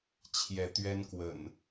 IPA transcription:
t͡ɕʰjɛ˨˦t̪ɥɛ˦nkwə̰˨˩n

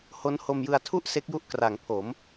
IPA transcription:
ho˦˥nho˧mjɯ˧a̯ tʰu˥˩ʔ se˦˥k̚ju˦˥ʔ kra˩˦ŋpʰo˩˦m

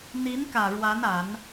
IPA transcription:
n̪i˧˥nkä˨˩ ɻwa˧˥na˨˩˦n

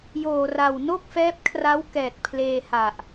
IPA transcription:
joː˨˩ra˨˩w no˥˩k̚fɛː˦˥p̚kʰra˦˥w kɛː˨˩t̚pʰleː˧ ha˨˩ʔ

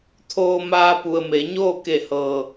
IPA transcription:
t̪ʰoː˧maː˧pu˩ə̯me˩˧ ɲoː˥˨ke˧˩hɤː˩

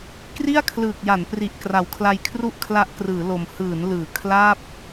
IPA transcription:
kri˥˩a̯kʰlɯː˨˩k̚ja˩˦npri˨˩ʔ kra˨˩wkʰla˧jkʰru˥˩ʔ kʰla˦˥ʔkrɯː˩˦lo˨˩m hɯː˩˦nlɯː˩˦ kʰla˥˩p̚

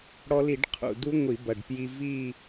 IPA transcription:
ɽɔ˧li˧˩˧ɖ qʰṵ˨˩du˦˥ ŋʷi˧˩˧bɐ˨˩ɖpji˧vi˥˧

